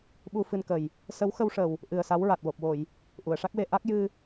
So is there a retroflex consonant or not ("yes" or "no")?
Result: yes